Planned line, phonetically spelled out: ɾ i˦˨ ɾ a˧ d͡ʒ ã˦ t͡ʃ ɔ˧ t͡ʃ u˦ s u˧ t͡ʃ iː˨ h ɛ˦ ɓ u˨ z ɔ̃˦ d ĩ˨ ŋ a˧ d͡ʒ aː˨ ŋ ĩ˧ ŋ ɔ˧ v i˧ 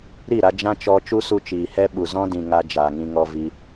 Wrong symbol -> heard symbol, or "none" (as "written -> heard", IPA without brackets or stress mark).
none